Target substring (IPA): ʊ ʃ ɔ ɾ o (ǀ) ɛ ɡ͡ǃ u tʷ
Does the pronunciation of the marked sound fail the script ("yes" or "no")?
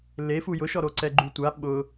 no